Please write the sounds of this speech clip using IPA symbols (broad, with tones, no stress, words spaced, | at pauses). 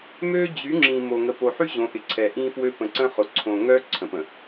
mø˦d͡ʑy˨˦ ŋ͡ǁĩ˨ mo˨ ŋə˨po˨ħy˦ ʑõ˨˦ʔɪ˨ǀʰɛ˨ ʔĩ˦fwø˦ pə̃˨ǀə̃˦χʊ˨ ǀʰõ˨ŋœ˦ ǀʰə̃˨pə̃˨